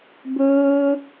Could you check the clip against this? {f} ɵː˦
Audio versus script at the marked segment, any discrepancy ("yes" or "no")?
yes